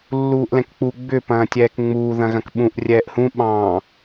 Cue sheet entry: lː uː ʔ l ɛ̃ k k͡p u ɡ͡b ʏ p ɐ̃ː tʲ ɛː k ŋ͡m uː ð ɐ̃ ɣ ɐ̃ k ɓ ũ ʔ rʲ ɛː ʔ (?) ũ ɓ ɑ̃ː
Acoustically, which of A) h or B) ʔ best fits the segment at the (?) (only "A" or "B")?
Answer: A